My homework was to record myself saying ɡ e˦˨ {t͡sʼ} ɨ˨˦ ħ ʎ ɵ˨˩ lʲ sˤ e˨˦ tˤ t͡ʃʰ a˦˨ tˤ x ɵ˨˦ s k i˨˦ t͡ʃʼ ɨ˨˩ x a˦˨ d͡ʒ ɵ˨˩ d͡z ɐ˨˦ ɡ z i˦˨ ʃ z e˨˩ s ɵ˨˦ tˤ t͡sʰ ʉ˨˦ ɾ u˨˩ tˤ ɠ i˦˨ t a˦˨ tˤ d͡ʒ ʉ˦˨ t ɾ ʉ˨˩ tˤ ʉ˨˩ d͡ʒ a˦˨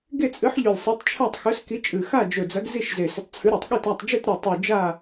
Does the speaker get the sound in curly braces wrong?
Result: no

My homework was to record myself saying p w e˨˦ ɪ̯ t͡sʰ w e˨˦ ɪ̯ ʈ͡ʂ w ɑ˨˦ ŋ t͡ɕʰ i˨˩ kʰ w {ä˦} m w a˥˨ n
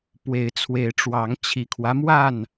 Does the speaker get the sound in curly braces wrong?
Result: no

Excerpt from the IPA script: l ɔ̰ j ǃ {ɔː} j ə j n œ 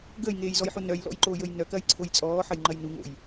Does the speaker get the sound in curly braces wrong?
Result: yes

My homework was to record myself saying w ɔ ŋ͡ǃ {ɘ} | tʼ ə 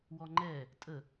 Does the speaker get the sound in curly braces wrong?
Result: yes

